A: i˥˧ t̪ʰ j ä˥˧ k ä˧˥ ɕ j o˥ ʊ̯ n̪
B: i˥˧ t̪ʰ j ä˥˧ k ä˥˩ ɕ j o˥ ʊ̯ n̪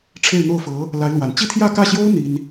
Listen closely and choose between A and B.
B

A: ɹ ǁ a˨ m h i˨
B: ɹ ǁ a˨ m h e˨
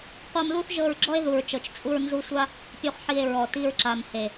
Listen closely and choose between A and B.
B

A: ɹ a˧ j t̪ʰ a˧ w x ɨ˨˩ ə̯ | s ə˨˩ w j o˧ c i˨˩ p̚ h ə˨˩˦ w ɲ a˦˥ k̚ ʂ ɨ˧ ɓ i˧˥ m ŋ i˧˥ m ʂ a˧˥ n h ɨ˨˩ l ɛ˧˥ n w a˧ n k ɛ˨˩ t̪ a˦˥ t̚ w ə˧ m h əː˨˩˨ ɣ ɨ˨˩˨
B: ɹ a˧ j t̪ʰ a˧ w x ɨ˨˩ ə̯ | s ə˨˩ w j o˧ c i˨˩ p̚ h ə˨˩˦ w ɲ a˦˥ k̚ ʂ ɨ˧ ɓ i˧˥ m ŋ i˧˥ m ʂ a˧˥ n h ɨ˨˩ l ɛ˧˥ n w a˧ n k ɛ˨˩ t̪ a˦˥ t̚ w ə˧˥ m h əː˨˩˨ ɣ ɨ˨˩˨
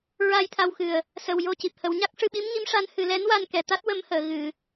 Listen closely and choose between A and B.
B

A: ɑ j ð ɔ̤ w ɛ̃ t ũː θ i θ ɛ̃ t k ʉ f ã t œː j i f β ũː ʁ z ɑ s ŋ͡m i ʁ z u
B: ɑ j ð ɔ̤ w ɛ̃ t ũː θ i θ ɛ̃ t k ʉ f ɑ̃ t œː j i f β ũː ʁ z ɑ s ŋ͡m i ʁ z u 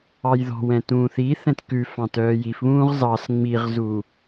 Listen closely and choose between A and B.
B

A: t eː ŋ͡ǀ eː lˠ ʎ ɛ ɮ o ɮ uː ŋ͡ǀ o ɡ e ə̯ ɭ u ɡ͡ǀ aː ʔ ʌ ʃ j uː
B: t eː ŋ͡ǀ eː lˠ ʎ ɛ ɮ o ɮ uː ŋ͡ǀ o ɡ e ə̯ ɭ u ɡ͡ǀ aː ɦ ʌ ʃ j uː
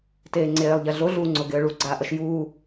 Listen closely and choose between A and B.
A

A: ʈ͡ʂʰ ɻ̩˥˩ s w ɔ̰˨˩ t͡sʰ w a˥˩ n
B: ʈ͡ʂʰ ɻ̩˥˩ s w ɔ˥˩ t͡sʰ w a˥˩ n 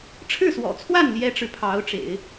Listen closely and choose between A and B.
A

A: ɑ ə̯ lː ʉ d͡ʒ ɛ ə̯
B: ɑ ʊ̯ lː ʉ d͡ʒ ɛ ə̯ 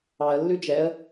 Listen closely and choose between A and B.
A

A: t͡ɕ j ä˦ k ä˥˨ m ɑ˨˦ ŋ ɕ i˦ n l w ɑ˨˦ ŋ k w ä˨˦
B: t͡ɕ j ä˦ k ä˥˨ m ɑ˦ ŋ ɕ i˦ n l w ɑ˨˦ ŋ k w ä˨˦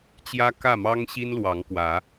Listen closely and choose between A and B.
B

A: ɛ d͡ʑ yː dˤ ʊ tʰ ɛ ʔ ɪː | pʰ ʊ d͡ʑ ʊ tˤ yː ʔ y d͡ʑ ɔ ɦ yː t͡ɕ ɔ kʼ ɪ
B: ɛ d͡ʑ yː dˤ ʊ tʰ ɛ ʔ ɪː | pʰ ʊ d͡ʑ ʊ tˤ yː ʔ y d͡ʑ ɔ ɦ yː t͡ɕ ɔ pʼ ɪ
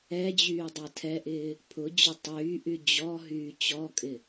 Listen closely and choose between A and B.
A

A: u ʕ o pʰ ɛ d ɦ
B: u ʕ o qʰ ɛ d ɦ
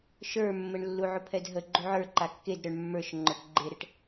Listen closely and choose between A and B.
A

